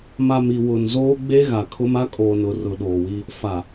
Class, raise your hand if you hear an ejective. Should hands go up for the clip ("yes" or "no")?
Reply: yes